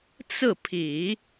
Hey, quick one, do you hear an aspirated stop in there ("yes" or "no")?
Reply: yes